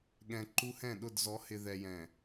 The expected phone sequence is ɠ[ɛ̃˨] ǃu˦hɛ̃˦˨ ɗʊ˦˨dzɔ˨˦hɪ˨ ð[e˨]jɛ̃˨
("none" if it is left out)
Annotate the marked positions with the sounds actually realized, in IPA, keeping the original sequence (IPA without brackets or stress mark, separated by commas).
ɛ̃˨, ɛ˨